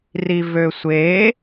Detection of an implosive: absent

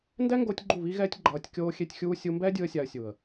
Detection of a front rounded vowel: absent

